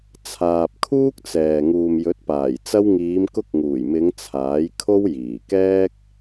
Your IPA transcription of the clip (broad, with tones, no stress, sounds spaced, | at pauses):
t͡sʰ aː˨ p̚ kʰ uː˥ k̚ t͡s ɛː˨ ŋ uː˨ m j ɵ˨˥ t̚ p aː˨˩ j t͡s ɐ˧ w ŋ iː˨˧ m k ʊ˧ k̚ ŋ uː˨˩ j m ɪ˨˧ ŋ t͡sʰ aː˨˥ j kʰ o˥ w j iː˨˩ k ɛː˥ k̚